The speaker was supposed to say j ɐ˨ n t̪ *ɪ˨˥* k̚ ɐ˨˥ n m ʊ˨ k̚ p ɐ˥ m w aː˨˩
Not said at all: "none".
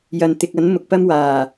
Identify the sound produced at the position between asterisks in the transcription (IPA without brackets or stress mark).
ɪ˨